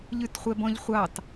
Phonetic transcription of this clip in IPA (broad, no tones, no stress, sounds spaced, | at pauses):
ʎ ʉ t χʷ ɛ b ɔ̃ ʎ χʷ ɑ t